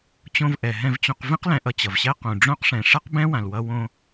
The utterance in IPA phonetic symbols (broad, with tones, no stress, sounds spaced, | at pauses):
t͡ɕ õ˧ v ʔ ɛ˩ ɦ ɛ̃˧ v t͡ɕ õ˧ q v ĩ˥ q l ɛ̃˧ ʔ ʌ˧ t͡ɕ ʌ˩ v ɕ ɛ˥ q ũ˩ ɖ͡ʐ õ˥ q ʂ ɛ̃˩ ʂ ʌ˥ q b ɛ̃˥ w ã˩ l w ʌ˧ w õ˧